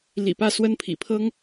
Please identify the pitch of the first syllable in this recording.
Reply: low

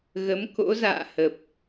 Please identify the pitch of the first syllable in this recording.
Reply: rising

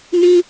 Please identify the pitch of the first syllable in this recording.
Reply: high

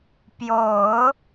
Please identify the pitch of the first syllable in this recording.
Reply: low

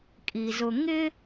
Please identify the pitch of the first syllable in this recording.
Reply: low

